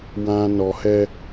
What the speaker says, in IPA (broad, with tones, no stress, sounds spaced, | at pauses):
w ã˨ n ɔ˨ h ɛ˧